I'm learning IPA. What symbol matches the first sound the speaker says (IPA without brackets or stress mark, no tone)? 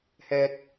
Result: h